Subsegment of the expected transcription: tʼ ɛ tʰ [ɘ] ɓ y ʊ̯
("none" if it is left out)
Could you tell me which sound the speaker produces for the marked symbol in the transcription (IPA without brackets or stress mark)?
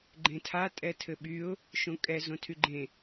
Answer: ɘ